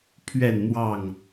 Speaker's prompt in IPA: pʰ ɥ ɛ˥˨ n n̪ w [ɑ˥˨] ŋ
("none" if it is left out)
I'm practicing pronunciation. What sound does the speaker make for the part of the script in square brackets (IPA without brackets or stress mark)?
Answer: ɑ˥˨